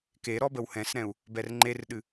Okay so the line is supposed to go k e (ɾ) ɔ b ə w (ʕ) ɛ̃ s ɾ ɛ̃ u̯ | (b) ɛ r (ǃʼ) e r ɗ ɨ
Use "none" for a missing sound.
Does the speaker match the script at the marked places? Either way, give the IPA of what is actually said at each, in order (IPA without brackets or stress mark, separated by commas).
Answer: ɾ, h, b, ŋ͡ǃ